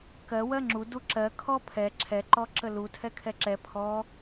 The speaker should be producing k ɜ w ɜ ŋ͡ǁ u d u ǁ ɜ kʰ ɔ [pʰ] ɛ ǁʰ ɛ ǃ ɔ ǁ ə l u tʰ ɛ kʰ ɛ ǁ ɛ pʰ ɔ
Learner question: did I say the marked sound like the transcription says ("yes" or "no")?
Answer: yes